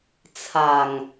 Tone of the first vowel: low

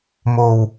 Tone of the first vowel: low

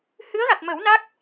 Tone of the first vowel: rising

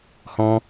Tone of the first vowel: high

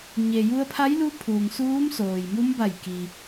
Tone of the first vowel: low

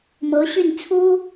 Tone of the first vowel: rising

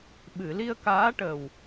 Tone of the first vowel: low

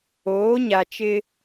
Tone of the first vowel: rising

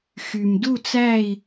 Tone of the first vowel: low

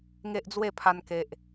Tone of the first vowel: high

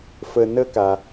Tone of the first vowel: low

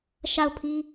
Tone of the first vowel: falling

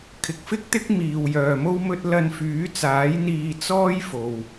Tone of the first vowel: low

